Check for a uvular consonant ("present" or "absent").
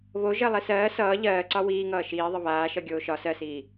absent